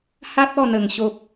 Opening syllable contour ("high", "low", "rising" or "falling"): high